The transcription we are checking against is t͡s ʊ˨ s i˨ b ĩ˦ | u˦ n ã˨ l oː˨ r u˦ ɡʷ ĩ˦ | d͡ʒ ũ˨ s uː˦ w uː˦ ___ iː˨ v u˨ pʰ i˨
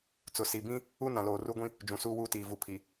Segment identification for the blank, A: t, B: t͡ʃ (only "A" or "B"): A